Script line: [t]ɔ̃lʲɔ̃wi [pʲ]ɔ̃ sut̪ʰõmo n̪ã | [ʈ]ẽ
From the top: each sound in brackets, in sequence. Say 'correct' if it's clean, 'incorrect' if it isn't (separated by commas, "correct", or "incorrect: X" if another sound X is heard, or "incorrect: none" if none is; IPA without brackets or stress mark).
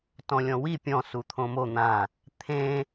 correct, correct, incorrect: t̪ʰ